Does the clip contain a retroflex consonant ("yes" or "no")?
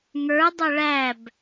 yes